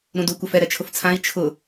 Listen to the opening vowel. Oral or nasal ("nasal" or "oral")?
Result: nasal